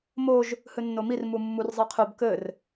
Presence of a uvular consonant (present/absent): present